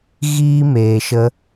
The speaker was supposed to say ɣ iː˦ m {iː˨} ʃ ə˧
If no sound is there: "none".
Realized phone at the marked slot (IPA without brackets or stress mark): eː˨